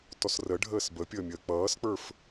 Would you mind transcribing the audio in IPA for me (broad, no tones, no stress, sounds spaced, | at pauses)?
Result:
t ɔ s r ə ɖʱ əː s b ə pʲ əː mʲ əː k͡p ʌː s k͡p ə˞ f